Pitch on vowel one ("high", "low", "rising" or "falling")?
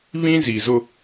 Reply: high